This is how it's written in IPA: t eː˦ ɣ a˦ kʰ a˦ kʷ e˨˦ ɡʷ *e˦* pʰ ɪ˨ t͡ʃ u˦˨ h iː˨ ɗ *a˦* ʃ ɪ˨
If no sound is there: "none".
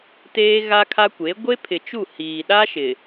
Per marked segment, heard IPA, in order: e˦, a˦

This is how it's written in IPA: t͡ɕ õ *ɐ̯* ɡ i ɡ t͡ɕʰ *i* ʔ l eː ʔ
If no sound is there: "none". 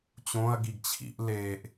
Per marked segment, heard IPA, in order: ɐ̯, ḭ

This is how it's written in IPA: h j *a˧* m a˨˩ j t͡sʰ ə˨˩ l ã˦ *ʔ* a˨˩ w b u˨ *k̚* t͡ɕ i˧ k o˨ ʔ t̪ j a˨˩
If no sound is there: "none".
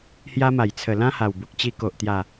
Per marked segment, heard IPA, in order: a˧, h, k̚

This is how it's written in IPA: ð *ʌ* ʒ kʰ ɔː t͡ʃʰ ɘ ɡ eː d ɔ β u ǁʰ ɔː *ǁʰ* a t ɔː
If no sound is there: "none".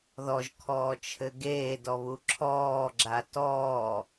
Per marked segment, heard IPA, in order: ɔ, ɡ͡ǁ

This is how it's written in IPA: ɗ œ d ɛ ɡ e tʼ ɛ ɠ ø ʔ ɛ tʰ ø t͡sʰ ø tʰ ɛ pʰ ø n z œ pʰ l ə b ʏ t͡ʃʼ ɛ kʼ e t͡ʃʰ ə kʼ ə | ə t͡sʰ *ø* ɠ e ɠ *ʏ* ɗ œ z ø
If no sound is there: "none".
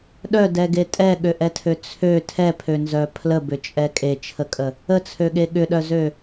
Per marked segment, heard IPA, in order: ø, ʏ

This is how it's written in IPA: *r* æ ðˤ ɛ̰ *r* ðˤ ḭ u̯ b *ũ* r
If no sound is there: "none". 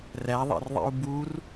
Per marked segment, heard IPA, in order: r, r, u

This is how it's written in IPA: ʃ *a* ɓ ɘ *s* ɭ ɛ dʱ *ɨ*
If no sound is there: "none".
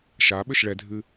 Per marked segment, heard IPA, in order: a, ʃ, ɨ

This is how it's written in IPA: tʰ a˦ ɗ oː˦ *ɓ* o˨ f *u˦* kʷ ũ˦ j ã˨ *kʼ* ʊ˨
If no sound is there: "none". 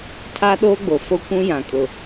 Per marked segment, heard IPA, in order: ɡ͡b, o˦, kʼ

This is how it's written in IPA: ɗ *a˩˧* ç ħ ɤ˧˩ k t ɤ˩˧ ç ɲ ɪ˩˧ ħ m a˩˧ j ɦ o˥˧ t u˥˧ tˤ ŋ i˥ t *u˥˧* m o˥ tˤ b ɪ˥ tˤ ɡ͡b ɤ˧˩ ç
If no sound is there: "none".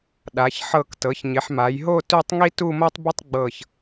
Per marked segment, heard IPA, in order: a˩˧, u˥˧

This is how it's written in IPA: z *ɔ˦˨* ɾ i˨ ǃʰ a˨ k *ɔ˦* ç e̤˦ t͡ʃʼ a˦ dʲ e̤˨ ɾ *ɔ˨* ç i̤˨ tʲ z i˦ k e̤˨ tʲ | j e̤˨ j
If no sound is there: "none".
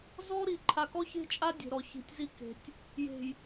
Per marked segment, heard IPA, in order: ɔ˦, ɔ˦, ɔ˨

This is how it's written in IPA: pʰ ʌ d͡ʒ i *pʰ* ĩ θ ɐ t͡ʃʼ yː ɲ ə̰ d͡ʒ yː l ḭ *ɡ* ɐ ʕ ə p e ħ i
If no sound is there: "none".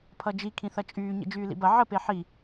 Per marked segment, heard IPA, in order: kʰ, b

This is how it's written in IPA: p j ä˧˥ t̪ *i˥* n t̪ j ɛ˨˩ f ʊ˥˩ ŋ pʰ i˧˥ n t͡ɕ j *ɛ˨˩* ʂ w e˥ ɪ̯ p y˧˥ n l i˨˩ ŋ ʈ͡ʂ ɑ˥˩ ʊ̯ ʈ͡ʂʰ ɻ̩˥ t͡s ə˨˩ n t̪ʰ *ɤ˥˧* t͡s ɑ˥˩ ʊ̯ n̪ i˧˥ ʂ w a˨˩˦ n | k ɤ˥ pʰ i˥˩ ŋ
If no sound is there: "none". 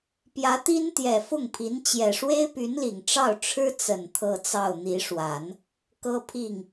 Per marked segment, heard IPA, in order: i˥, ɛ˨˩, ɤ˥˧

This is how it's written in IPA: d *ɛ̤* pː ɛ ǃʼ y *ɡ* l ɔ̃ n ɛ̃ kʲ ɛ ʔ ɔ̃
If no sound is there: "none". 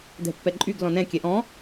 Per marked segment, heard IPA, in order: ɛ̤, ɡ

